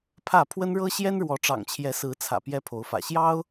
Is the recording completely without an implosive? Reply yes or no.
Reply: yes